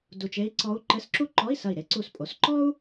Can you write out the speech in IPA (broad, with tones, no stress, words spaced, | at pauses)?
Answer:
du˧˩t͡ʃe˧˥i̯ ǀɔ˧˥u̯ǃɘ˧˥˧sǁu˥ ǃɔ˧˥˧i̯sɐ˧˩i̯ ɾe˧˥ǀu˧˩spʼo˩˧s ǃɔ˥u̯